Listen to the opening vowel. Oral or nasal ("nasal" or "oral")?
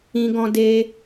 nasal